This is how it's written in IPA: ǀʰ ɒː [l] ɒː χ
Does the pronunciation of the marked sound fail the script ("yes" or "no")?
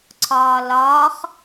no